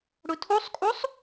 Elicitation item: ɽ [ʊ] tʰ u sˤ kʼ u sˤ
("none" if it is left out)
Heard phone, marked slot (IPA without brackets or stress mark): ʊ